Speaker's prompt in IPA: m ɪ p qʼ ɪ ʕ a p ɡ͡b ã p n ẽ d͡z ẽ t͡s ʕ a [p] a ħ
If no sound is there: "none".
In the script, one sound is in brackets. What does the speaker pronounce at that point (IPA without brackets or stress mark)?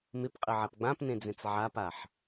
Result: p